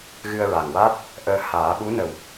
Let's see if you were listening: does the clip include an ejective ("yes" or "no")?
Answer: no